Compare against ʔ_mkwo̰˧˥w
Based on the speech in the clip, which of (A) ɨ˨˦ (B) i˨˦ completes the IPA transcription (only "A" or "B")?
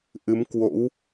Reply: A